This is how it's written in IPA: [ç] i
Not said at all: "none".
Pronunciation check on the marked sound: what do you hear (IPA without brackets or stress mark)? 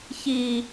ç